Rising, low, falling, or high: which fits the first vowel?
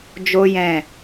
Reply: high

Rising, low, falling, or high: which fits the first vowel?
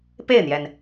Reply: falling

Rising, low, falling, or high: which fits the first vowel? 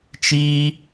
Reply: high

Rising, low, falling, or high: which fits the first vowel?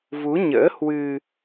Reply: rising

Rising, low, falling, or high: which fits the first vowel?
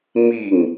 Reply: falling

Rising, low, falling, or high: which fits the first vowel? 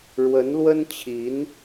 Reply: rising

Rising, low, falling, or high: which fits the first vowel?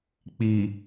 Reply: low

